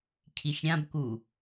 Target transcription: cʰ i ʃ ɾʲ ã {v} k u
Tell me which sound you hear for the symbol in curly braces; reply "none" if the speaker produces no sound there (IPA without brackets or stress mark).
b